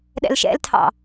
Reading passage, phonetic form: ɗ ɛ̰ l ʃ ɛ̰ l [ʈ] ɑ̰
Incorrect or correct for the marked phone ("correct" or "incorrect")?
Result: incorrect